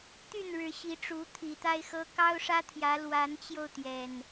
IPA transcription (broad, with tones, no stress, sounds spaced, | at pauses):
t̪ y˥˨ n ɻ ɻ̩˨˦ ɕ i˨˦ ʈ͡ʂ u˨˦ t̪ʰ i˨˩ t̪ a˦ ɪ̯ x ɤ˦ k ɑ˦ ʊ̯ ʂ ä˦ t̪ʰ j ä˨˦ l w a˨˦ n t͡ɕ j o˧ ʊ̯ t̪ j ɛ˨˩ n